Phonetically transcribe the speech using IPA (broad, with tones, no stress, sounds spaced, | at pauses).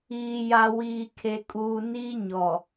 iː˨ j a˨ w iː˨ kʰ e˨ kʼ uː˨ n iː˦ ɲ ɔ˨